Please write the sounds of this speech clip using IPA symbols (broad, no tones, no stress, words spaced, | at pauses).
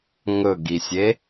ŋɵɡisʲe